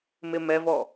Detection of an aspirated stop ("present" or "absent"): absent